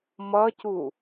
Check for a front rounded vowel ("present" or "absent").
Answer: absent